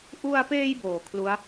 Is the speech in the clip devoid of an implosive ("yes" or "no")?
yes